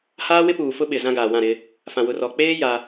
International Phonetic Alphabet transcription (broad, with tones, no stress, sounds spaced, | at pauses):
h aː˦ w ɪ˦ p uː˨ f ʊ˦ ɓ ɪ˨ z ã˦ ɡ aː˨ w ã˦˨ ɾ ɪ˦ | f ã˨ w ʊ˨ r ɔ˨ k͡p eː˦ j a˦